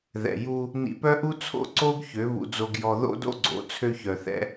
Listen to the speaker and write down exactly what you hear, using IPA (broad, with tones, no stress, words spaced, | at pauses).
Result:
ðɛ̰˨ju˧ | nḭ˧pœ˦ʔu˦t͡sʰo̰˦ ǀo˦ɡçø˨˦ βṵ˧d͡zo˧ɡjɔ˧ ðo̰˦do̰˦ɡ͡ǀo̰˨˦ t͡sʰø˧çœ˨θɛ̰˧